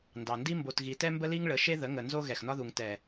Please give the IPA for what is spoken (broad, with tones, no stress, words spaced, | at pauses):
ndɑ˨ndi˦ mbo˨tɣi˨tɛ˦ mbə˦li˦ŋɭə˨˦ʃe˦ ðə˨˦ŋə˨ nzo˦ɣɛ˨xnɒ˦ðu˨ŋ tɛ˨